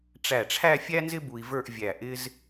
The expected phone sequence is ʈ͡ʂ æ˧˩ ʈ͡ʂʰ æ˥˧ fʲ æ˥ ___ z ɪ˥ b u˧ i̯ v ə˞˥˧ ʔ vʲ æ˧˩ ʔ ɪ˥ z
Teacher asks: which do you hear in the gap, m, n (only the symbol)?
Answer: n